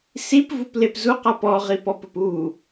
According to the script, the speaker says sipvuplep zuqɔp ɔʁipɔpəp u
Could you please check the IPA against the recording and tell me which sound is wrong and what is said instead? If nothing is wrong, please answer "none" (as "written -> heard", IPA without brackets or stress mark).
none